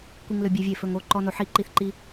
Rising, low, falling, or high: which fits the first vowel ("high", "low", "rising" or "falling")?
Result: high